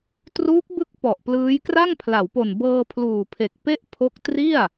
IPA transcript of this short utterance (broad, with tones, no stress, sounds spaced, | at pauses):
t r uː˦˥ k̚ b ɯ˦˥ k̚ p ɔ˨˩ ʔ p l ɯː˦˥ j k r a˥˩ ŋ pʰ l a˩˦ w p o˨˩ n b ɤː˧ pʰ l uː˨˩ pʰ e˨˩ k̚ p e˥˩ ʔ pʰ o˦˥ k̚ t r i˥˩ a̯